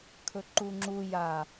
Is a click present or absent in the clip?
present